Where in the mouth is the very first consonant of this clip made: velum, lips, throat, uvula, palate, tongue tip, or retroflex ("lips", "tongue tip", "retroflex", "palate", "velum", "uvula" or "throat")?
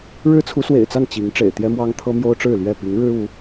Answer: retroflex